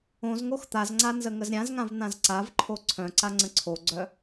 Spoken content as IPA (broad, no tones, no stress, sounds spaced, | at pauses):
õ z ŋ o x t̪ a z ŋ͡ǀ a n z ə ŋ ə z ɾʲ ã z ŋ ã v n̪ ã z ǀ a v ǃʰ o ǀʰ œ̃ ǀ a ŋ͡ǀ ə̃ ǀʰ o ɡ͡ǀ œ